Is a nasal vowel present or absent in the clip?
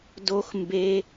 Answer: absent